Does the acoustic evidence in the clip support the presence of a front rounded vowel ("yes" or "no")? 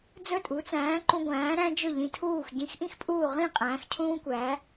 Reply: no